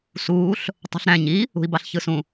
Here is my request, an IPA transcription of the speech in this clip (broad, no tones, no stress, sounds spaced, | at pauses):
s uː ɬ | tˤ ɑ̤ ɬ ɾ æ̃ ɲ i | ṳ i̯ b ɑ ɬ ç ɯ s ũ